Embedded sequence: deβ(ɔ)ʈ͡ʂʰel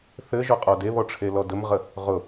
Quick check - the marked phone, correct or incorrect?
correct